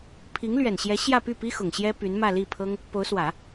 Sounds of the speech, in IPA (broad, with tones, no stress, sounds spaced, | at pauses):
pʰ i˧˥ ŋ l ɥ ɛ˨˩ n ɕ j ɛ˧˥ ɕ j ä˥˧ p y˥˩ p i˥ x ʊ˨˩ ŋ ɕ j ɛ˥ p y˧˥ n m ä˥˧ l i˥˩ pʰ ɤ˥ ŋ | p o˧˥ ʊ̯ s w ä˨˩˦